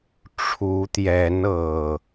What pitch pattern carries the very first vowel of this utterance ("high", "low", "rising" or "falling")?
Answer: rising